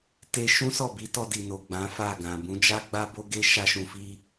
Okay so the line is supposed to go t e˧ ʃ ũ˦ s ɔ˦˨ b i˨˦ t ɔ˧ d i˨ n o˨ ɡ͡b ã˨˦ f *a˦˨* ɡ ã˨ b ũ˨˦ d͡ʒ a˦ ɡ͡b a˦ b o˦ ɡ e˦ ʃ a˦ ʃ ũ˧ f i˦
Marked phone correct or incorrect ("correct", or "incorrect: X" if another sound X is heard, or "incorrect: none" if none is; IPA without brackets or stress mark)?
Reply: correct